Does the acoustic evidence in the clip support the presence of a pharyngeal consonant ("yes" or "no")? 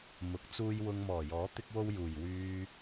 no